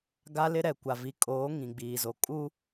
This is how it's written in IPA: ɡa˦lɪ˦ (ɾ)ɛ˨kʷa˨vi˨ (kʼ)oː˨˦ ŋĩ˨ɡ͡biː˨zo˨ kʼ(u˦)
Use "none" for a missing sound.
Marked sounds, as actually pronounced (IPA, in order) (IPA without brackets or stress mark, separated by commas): ɾ, kʼ, u˦